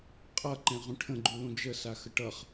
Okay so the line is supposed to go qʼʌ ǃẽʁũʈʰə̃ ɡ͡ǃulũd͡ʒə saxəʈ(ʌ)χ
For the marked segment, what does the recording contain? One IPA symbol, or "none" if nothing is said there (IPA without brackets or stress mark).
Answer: ʌ